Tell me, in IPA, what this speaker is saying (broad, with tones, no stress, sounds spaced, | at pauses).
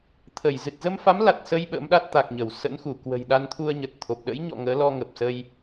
t̪ʰ ə˧˩ j z ɨ˨˩ t̚ z ə˧ m f a˨˦ m l a˨˩ t̚ s ə˧ j ɓ ə̰˧˥ m ɗ a˦˥ t̚ t̪ a˨˩ k̚ ɲ ə˧˩ w s ə̰˧˥ n x u˧˩ k w ə̤˨˩ j ɗ a˧ n t̪ʰ u˧ ə̯ ɲ ə˨˩ t̚ t̪ʰ o˨˩ p̚ ɗ ə̰˧˥ j ɲ ɔ̰˧˨ ŋ əː˨˦ l ɔ˧ ŋ ə˨˩ p̚ s ə˧ j